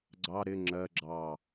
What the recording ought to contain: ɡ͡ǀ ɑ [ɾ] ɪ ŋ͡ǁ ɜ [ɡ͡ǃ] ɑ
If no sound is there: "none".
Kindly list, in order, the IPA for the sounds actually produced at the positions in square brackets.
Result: ɾ, ɡ͡ǁ

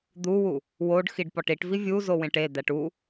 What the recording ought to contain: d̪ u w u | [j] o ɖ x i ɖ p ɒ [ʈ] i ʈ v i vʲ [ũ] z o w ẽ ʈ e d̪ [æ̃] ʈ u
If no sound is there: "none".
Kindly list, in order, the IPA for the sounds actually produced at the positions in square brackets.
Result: w, ʈ, u, æ

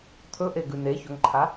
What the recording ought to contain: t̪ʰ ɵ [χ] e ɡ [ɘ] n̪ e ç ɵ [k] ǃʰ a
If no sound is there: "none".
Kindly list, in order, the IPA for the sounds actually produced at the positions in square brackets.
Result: ʔ, ʉ, ŋ

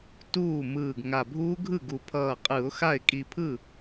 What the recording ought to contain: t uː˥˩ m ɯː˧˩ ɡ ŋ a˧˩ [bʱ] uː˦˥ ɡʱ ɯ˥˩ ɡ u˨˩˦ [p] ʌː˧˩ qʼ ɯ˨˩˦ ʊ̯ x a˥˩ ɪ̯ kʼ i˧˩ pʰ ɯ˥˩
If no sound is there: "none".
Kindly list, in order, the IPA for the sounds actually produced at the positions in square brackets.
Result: bʱ, pʰ

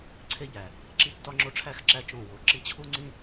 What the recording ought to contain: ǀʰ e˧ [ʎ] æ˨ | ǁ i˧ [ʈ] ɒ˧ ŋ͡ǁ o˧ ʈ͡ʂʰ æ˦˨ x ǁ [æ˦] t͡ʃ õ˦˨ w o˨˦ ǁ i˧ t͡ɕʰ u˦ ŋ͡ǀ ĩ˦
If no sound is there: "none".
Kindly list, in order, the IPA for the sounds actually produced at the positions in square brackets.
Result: ʎ, tː, æ˦

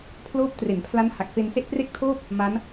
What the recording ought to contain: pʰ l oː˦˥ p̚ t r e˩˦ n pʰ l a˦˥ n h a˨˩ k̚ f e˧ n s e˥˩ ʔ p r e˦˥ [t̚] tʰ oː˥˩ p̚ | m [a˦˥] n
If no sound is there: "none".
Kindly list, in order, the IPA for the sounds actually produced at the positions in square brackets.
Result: k̚, a˦˥

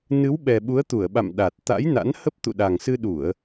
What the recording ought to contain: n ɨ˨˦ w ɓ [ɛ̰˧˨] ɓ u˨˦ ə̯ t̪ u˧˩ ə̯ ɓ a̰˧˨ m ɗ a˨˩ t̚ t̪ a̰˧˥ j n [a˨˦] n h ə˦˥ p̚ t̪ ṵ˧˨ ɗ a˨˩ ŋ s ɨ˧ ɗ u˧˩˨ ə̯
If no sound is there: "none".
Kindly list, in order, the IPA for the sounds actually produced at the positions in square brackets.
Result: ɛ˨˩, a̰˧˥

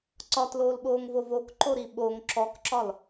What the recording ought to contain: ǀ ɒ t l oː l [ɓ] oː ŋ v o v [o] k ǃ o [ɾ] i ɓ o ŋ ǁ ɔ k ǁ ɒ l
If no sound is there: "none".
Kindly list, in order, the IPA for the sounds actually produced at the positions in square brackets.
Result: ɓ, o, ɾ

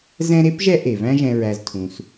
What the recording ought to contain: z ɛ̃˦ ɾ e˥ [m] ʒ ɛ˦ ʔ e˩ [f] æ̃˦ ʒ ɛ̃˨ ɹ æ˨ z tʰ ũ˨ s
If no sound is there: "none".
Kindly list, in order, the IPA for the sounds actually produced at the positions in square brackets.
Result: p, v

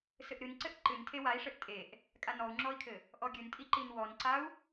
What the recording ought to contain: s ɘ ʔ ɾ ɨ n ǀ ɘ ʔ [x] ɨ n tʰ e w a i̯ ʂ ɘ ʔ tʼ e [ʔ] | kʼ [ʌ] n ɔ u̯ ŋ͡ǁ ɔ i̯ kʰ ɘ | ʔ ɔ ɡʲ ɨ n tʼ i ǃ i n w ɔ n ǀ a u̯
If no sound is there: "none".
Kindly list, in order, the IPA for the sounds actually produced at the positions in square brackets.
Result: ǃ, ʔ, a

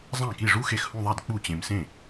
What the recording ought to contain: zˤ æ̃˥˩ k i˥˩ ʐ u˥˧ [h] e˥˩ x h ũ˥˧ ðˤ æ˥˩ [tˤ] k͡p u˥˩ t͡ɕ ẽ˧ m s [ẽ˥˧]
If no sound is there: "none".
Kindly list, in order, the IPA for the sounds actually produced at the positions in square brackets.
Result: x, d, ẽ˥˩

